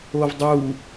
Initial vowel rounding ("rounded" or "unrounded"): rounded